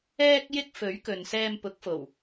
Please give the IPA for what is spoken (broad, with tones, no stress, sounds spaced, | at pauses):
ɛː˥ k̚ j ɪ˥ k̚ f ɵ˨˥ ɥ k ɵ˨ n s ɛː˧ m p ʊ˨˥ k̚ f o˨˩ w